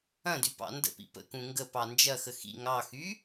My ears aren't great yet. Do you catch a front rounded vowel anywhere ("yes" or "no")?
yes